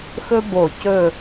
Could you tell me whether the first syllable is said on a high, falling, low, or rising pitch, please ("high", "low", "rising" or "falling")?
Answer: high